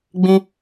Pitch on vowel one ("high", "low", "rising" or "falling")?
high